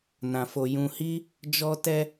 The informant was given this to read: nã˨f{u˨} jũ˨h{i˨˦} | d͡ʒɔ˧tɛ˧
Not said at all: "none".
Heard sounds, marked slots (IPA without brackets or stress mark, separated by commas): o˨, i˧